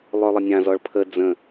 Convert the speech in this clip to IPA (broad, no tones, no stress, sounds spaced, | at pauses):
lˠ ø lˠ ə nʲ ã z ɔ ɭ pʰ ə d͡z ə̃